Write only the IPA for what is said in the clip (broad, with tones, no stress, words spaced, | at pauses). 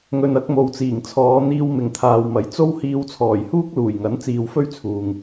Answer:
ŋɵ˨nɐ˧k̚ mo˨wt͡siː˨˩ŋt͡sʰɔː˨˧ n̪iː˧wmɪ˨ŋt̪ʰaː˨wmɐ˨˥j t͡so˥whiː˧w t͡sʰɔː˨˩jhuː˥k̚luː˨˩j ŋɐ˨˥nt͡siː˨w fɵ˥ɥt͡sʰuː˨ŋ